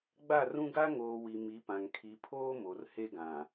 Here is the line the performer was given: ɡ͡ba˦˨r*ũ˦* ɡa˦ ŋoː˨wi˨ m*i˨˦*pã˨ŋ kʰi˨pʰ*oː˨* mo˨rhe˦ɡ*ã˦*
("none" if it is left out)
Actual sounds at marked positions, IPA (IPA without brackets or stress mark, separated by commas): ũ˦, i˨˦, oː˦, ã˨